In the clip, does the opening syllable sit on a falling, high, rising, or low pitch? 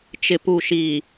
low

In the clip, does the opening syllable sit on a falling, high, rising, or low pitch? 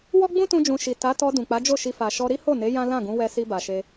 high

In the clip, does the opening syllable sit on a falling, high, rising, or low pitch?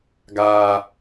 low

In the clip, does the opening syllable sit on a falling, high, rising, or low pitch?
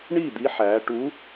falling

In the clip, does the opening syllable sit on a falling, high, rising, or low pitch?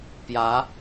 rising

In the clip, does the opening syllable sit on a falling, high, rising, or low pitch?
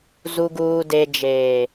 low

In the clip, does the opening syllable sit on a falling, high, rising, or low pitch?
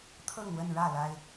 falling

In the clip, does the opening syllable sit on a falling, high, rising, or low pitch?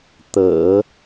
low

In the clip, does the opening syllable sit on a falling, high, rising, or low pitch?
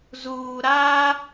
low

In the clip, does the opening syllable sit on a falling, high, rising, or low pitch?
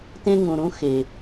high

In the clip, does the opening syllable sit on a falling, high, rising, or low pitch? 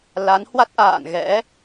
rising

